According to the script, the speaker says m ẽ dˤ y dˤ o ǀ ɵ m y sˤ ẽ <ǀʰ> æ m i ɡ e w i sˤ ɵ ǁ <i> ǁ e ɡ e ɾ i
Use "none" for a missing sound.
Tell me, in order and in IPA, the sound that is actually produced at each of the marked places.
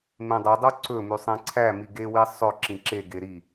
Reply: ǀʰ, ĩ

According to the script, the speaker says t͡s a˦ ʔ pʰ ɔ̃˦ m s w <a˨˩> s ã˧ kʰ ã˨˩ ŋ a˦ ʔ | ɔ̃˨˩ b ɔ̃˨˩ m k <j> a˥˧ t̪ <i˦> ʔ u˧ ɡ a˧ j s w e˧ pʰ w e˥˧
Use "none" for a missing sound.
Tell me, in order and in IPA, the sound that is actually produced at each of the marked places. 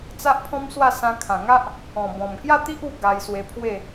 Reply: a˥˧, j, i˦

